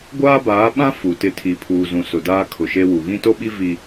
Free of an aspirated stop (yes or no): no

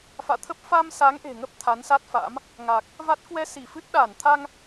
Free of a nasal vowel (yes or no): yes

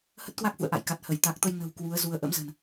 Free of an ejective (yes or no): yes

